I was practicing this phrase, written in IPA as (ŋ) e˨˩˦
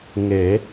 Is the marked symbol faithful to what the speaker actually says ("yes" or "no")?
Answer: yes